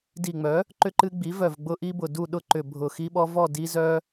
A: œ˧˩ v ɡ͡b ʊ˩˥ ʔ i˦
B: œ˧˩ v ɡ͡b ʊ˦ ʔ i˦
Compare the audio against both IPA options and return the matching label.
B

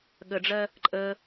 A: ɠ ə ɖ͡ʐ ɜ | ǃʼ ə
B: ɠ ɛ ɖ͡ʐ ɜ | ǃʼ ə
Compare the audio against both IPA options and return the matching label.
A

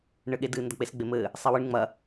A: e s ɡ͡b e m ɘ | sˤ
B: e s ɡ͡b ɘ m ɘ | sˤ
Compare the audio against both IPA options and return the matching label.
A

